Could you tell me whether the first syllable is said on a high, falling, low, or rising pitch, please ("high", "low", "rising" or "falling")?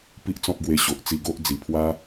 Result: high